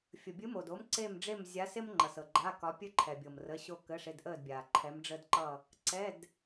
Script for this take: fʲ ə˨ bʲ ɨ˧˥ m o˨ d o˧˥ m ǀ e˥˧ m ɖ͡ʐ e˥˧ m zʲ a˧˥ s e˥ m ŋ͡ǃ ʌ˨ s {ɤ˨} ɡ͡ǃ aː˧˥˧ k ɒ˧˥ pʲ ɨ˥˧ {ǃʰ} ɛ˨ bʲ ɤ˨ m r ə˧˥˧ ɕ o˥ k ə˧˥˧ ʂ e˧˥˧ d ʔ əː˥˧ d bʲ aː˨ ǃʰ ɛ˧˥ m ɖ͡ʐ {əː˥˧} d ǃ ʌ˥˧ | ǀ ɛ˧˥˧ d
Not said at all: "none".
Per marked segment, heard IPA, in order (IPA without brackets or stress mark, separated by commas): ɤ˨, ǃʰ, əː˥